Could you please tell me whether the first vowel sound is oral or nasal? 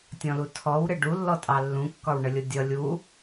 nasal